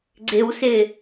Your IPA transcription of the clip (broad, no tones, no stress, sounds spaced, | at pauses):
ɡ͡ǀ ɪ w s ɪ